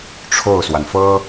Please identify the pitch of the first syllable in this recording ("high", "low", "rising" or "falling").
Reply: falling